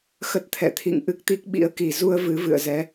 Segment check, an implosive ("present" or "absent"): present